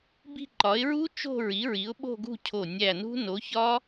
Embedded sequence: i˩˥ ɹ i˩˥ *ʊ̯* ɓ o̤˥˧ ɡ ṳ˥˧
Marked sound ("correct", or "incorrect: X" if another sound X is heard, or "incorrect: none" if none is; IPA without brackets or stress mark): correct